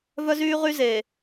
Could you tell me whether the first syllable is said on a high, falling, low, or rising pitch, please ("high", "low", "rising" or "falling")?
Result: high